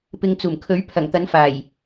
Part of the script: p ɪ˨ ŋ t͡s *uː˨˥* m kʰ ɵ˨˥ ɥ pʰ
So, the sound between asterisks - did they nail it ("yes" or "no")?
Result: no